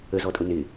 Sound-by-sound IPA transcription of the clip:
ə z ɔ tʼ ʊ n ɪ

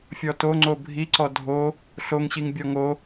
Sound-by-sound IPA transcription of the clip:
fʲ ɔ t o ŋ͡ǀ o bʱ i ǀ ɔ dʱ o | ɬ o ŋ ɕ i ŋ bʲ ɔ ŋ o

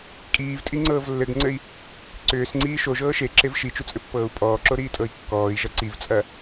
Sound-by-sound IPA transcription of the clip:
kʼ iː v tʼ i ŋ͡ǀ ɤː v lː ɘ ɡ ŋ͡ǀ ɘ i̯ | ǀ ʏː s ŋ͡ǀ iː ʃ o ʒ ɤː ʃ e ǁ e v ʃ i t͡ʃ u t͡sʼ ʏ pː ɤː u̯ pʼ ɔː ǁ o ɾ iː tʼ ɤ i̯ kː ɔː i̯ ʒ ɐ ǀ i v t͡sʼ ɐ

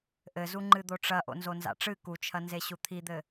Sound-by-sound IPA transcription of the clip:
ʔ ɘ z u ŋ͡ǃ ɨ d̪ o ʈ͡ʂ ɐ ʔ o̰ n z o n z a̰ ʈ͡ʂ ɨ k u t͡ʃʰ ɐ n z e ɕ u t̪ʰ i d̪ ɘ

